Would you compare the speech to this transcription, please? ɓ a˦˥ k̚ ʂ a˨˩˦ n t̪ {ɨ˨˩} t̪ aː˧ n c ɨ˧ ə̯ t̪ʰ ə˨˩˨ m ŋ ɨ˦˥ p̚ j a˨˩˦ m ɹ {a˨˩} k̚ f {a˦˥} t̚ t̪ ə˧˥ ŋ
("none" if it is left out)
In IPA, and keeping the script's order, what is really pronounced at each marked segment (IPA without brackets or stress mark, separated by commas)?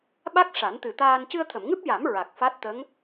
ɨ˨˩, a˨˩, a˦˥